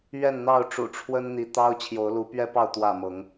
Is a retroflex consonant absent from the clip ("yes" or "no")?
no